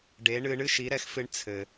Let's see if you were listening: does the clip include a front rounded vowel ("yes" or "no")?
no